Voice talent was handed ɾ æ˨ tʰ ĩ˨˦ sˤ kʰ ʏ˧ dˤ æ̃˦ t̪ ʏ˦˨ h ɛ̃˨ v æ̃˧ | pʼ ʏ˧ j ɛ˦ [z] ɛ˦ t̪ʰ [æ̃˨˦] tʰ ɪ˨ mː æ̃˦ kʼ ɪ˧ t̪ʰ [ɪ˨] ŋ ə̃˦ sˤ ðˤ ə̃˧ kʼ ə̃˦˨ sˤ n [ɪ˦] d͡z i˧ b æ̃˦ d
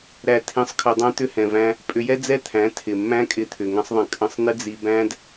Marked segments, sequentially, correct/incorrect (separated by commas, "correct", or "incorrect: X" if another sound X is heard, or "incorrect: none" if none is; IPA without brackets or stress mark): incorrect: d͡z, correct, incorrect: ʏ˨, correct